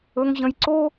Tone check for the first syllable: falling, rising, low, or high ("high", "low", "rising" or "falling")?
high